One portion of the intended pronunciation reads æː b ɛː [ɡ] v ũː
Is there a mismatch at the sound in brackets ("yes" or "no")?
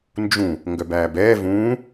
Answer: yes